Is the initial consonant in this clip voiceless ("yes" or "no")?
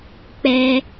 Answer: yes